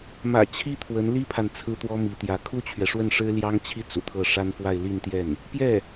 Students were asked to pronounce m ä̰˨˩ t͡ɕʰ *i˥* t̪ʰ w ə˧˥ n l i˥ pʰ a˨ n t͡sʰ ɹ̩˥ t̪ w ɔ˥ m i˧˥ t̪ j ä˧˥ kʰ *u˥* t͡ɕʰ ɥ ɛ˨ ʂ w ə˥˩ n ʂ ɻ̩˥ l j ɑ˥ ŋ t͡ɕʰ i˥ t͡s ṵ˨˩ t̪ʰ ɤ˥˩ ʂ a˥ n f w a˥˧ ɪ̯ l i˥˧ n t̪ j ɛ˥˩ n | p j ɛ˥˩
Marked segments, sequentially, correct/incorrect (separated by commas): correct, correct